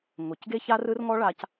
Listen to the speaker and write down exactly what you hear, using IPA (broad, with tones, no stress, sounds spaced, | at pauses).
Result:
ŋ o˨ c ɡ e˦ ç a˦ r ɯ˦ r ŋ ɔ˦ ɭ a˧ c